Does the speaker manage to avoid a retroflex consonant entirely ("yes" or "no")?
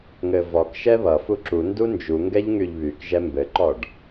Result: no